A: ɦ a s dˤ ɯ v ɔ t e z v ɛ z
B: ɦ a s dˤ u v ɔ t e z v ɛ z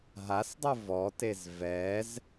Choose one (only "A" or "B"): A